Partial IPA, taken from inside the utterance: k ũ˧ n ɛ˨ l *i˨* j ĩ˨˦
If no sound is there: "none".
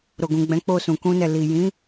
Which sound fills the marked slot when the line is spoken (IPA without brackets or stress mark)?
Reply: i˨